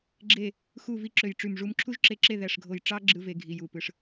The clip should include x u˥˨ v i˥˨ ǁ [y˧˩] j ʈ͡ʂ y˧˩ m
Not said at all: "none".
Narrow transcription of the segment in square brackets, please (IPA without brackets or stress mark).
ø˧˩